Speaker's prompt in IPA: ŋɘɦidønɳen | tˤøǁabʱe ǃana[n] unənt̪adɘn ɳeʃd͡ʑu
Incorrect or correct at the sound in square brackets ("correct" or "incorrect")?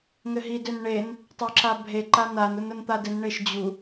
correct